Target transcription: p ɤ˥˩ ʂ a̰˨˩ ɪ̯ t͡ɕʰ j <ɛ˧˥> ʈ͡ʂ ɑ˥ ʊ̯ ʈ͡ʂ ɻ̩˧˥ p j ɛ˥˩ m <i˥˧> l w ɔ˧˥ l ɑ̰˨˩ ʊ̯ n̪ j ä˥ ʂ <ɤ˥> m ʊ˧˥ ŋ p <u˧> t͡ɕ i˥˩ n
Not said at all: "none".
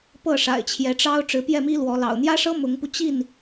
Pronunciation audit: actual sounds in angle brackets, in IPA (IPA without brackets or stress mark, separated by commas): ɛ˧˥, i˥, ɤ˥, u˧